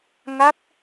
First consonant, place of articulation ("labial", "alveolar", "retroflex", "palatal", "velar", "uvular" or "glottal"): velar